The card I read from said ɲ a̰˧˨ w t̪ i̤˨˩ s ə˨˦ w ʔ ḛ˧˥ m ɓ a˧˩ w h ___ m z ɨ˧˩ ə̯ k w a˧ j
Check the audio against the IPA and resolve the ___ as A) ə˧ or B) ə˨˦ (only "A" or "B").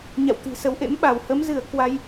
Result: B